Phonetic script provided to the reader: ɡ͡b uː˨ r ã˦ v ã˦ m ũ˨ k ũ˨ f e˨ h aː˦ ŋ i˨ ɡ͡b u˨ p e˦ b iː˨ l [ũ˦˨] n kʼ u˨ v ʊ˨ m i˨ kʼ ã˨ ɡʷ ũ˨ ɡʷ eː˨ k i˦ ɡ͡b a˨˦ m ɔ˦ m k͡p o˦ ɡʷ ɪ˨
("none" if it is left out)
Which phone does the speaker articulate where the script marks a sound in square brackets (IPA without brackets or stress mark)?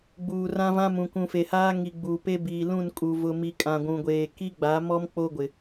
ũ˦˨